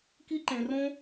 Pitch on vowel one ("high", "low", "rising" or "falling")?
high